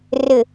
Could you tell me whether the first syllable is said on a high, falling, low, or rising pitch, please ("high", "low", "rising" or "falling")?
low